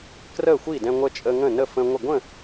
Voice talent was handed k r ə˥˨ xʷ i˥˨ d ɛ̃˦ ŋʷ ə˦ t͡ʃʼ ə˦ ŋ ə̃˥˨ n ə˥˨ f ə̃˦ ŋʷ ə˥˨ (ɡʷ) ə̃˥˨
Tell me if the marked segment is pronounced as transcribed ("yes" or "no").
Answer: yes